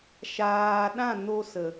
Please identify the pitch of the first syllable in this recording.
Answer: low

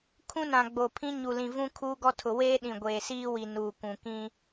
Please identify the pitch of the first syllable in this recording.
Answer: high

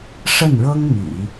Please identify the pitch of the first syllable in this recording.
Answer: falling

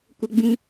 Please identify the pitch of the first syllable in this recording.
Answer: high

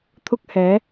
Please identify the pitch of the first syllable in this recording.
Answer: high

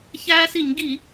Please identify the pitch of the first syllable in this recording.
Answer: high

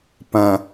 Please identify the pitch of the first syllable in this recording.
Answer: low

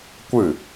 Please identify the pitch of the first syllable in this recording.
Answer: falling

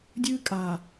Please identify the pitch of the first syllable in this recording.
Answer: high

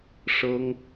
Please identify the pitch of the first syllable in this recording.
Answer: high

